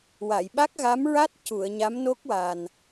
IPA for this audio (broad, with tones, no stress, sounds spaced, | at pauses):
w a˨˩˨ j ɓ a˦˥ k̚ ɣ a˧˥ m ɹ a˦˥ t̚ c u˨˩˨ ə̯ ɲ a˧˥ m n o˦˥ k̚ w a˨˩ n